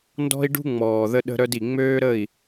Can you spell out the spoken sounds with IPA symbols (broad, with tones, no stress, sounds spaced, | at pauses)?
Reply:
n d ɔ̤˦ i̯ ɖ ṳ˦ ŋ͡m ɔː˨ ð ə˦ ɗ ə̤˦ ɾ œ˦ d i˨ ŋ͡m øː˦ ɾ ə˦˨ i̯